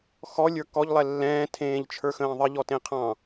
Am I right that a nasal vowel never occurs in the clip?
no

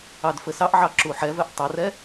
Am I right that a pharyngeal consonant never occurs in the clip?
no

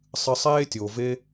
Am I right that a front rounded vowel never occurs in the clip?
yes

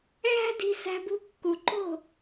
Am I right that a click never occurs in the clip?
no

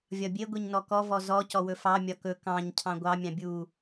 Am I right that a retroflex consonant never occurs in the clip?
yes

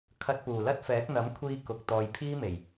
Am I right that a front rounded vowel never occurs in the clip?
yes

